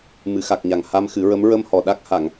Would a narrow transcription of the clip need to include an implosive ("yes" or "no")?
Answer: yes